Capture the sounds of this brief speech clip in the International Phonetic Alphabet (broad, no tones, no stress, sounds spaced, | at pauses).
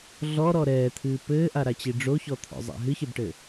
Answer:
ɮ ɔ ɾ ɔ ɾ ɛː t̪ʰ ɨː p ɘː ʔ a ɾ a t͡ɕ i ɖ͡ʐ o ç ɔ t̪ʰ ɔ̰ zˤ a̰ ɦ ɨ ç e b ʈ ɘ